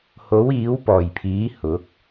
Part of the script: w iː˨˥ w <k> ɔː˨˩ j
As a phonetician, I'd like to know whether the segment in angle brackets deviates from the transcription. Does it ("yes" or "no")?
yes